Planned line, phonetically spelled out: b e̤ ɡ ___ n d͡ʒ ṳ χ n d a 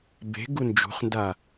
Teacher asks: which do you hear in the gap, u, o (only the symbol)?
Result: u